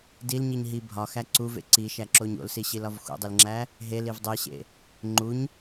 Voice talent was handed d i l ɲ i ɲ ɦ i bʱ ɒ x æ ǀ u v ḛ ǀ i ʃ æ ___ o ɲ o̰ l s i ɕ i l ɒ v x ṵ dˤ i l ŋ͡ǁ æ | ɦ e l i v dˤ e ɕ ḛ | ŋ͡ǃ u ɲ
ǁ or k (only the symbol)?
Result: ǁ